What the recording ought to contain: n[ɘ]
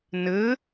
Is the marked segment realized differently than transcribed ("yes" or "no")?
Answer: no